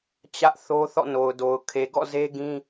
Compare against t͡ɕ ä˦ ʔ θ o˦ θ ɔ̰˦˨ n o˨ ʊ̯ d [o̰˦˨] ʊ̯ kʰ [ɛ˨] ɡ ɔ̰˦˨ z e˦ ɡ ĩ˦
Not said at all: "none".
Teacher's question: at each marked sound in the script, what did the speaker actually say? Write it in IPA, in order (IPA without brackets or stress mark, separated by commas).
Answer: o˨, e˨